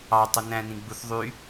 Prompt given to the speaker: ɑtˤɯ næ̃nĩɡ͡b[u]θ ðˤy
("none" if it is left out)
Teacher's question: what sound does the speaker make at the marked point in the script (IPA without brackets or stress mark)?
u